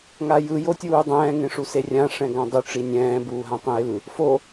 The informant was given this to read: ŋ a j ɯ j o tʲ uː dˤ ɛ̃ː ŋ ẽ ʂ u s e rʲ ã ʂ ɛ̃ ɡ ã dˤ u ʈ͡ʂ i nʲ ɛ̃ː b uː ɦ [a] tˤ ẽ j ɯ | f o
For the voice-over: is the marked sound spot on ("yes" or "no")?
no